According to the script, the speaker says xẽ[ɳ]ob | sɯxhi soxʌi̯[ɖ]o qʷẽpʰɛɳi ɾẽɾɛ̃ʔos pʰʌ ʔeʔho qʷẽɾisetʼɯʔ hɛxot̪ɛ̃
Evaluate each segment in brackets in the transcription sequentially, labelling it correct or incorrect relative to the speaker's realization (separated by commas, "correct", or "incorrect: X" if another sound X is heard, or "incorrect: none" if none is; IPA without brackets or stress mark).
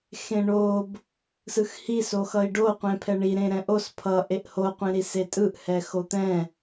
correct, correct